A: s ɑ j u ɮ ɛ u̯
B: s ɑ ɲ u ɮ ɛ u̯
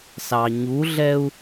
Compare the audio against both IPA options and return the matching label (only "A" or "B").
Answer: B